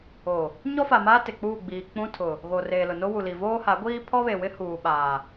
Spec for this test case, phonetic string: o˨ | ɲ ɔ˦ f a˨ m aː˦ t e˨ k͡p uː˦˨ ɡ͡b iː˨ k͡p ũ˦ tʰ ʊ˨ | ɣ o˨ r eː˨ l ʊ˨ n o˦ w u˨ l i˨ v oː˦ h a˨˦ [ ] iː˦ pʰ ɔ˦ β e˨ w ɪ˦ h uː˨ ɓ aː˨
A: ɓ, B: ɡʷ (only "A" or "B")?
B